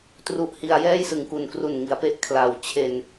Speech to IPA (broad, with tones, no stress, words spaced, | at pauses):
tru˦˥ʔhi˧a̯ jɛː˥˩jsɯ˨˩ŋku˨˩nkru˨˩n ŋi˩˦a̯pe˥˩ʔ kʰla˨˩w t͡ɕʰe˧n